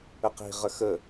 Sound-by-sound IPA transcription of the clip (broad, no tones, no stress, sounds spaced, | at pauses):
ə q i̤ ʁ ə x ə